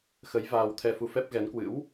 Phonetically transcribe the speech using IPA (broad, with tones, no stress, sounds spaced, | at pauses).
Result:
x ə˨˦ j v aː˧ w t̪ʰ ɛ˧ f u˧ f ɛ˦˥ p̚ ɣ ɛ˨˦ n k w ɨ̰˧˥ w